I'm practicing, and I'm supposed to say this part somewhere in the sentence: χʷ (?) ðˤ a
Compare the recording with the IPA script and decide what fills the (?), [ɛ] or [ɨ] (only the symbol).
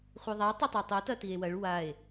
ɨ